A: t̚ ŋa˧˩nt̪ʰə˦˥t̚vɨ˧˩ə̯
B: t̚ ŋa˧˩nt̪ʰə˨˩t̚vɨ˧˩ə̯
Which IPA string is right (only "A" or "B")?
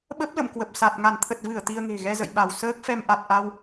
B